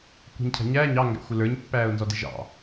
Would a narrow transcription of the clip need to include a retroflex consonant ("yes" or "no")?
no